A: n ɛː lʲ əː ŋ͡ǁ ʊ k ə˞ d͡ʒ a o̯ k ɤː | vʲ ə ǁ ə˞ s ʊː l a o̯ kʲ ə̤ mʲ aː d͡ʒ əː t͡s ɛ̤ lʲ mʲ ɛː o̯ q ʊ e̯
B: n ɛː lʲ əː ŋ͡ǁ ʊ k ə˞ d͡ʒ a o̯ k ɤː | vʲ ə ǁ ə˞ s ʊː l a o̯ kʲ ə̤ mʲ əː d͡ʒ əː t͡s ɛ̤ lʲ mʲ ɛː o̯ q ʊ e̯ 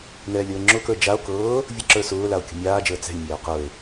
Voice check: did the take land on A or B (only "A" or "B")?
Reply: A